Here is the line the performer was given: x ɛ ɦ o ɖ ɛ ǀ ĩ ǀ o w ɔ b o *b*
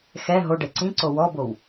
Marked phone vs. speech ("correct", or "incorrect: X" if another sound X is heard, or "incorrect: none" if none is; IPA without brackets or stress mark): incorrect: w